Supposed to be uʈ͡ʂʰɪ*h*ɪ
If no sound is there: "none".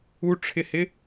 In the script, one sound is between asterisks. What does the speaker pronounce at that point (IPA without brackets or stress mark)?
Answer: h